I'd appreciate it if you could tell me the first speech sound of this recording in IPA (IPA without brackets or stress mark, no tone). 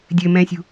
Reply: dʲ